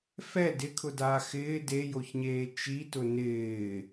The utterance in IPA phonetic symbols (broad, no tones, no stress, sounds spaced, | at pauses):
f ɛ d ɪ kʰ ʊ d aː x ɪː d e j o ç ɲ eː t͡ʃ i t ʊ n ɪː